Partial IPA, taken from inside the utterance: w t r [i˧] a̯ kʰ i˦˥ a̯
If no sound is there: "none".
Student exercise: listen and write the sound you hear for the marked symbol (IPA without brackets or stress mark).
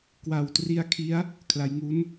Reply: i˦˥